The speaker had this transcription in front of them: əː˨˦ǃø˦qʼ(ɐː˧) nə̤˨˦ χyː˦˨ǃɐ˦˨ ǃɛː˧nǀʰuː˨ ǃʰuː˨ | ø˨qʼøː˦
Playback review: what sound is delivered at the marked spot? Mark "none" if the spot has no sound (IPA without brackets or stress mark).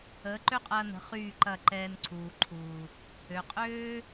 ɐː˧